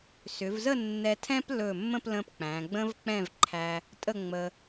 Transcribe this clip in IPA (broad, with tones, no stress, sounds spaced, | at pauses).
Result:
s ʏ˩˧ v z ə˥˧ nː ɛ˧ tʰ ɛ̃˥ p l ɵ˧˩ mː ə̃˥˧ p l ə̃˧ p k͡p æ̃˩˧ ɡ͡b ə̃˥ v k͡p ɛ̃˥˧ v ǃʰ æ˧ | tʼ ə˥˧ ŋ͡m ə˧